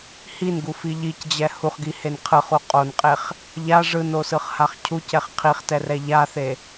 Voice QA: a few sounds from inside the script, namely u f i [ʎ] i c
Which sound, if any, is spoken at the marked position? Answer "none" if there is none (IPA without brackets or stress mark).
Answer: ʎ